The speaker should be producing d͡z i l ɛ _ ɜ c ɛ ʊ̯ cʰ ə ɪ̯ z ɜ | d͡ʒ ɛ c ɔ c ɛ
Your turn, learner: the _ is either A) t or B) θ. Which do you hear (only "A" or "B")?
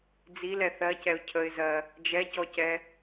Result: B